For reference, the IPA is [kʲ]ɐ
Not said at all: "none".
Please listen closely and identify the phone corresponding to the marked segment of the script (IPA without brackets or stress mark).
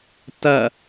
t